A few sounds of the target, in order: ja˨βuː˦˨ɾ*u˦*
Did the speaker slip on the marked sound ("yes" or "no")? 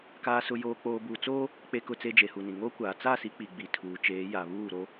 yes